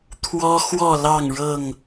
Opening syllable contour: high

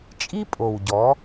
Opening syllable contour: high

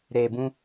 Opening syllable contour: low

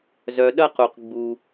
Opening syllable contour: low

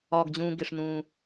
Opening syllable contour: low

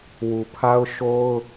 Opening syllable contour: low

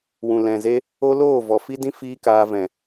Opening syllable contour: low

